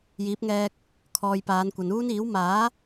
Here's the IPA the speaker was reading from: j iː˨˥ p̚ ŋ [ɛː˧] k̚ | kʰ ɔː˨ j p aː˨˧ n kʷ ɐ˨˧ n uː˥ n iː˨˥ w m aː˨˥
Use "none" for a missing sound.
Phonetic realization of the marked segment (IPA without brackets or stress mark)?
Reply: ɛː˧